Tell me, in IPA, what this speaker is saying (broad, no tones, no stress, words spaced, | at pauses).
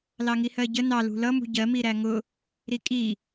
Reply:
lɑŋihɜɟə nɑ lṳlʌ mṳɟɜ miɾæŋʊ | ɾikʼi